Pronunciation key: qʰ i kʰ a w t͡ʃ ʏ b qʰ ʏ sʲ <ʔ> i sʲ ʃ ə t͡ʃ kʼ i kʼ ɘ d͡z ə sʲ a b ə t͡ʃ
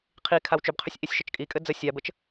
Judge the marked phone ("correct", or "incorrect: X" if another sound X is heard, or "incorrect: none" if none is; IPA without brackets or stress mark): correct